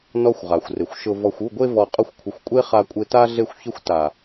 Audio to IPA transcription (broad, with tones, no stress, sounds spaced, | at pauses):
n ɔ˦ xʷ ʁ a˨ xʷ r ɪ˨ xʷ ʃ ʊ˧ v ɔ˨ xʷ u˦˨ ɡʷ e˧ v ɔ˨ qʼ ʊ˧ xʷ kʷʰ ɪ˨ xʷ kʷʼ e˦ χ a˧ kʷʼ ɪ˧ t a˦ ɮ e˧ xʷ ç ɪ˧ xʷ t a˨